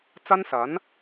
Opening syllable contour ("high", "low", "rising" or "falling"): high